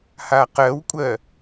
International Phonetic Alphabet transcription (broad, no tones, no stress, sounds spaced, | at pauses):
h a q ɜ w kʷʼ ɜ